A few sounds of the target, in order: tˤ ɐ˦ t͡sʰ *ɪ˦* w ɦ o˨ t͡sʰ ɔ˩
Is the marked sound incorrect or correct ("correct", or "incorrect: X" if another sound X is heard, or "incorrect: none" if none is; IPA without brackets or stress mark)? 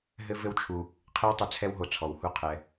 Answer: incorrect: ɛ˦